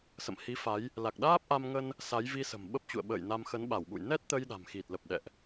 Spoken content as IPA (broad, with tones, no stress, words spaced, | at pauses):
sə̰˧˨mhi˨˦fa˨˦j | la˨˩k̚ɗaː˦˥p̚ʔa˧mŋə˧n | sa˨˦j vi˧sə̤˨˩m ɓə˦˥p̚t͡ɕṵ˧˨ə̯ɓə̰ː˧˨jna˧m xə˨˦nɓa˧˩wɓṵ˧˨j nɛ˦˥t̚t̪ə˧j ɗa̤˨˩mxi˨˩t̚lə˨˩p̚ ɗɛ̰˧˨ʔ